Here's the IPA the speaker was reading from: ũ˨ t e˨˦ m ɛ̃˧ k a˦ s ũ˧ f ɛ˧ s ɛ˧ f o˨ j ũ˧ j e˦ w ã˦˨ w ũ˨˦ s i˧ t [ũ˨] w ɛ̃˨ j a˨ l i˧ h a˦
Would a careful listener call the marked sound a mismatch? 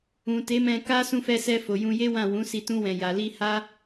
yes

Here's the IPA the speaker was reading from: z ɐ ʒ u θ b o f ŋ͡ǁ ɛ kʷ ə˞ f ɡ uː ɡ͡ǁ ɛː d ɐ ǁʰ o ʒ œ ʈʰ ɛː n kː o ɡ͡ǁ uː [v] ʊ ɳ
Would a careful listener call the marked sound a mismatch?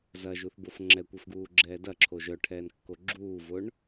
no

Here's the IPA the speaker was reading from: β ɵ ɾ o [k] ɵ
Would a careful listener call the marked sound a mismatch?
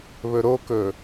no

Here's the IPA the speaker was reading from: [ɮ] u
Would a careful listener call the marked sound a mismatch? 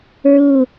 yes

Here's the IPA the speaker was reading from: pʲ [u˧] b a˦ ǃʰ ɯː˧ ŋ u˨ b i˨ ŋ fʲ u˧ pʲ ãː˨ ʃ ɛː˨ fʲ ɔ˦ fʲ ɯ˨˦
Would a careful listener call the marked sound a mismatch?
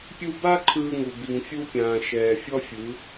no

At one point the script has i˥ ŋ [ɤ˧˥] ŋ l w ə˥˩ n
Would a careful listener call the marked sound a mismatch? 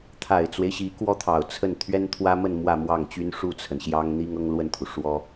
yes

